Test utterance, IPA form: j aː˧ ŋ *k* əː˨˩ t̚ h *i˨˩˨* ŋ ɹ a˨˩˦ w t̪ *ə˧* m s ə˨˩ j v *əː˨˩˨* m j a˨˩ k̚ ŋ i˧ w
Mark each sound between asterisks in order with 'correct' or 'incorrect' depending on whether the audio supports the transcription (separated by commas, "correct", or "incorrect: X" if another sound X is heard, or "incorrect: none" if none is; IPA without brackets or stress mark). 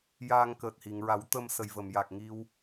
correct, correct, correct, incorrect: ə˨˩˨